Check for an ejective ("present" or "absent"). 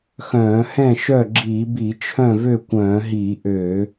absent